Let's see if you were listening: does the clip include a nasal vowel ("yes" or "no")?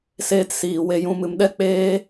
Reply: yes